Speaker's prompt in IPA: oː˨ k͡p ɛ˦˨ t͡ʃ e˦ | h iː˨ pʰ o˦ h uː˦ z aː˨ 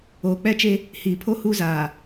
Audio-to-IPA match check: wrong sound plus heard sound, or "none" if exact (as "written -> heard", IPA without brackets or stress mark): none